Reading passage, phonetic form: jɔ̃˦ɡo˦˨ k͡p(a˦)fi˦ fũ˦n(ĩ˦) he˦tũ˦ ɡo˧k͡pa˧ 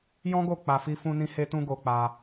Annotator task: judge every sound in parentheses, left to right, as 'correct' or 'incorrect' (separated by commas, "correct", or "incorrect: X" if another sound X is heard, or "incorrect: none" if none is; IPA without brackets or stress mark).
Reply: incorrect: a˧, correct